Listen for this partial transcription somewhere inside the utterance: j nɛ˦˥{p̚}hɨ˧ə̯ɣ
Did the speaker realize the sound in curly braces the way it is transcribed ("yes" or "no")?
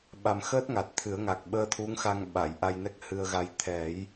no